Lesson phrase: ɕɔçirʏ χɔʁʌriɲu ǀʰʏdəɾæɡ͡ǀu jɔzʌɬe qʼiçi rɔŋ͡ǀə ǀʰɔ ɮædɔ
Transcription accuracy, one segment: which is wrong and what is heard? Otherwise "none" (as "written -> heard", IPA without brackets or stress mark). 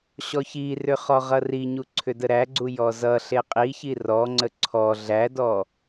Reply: none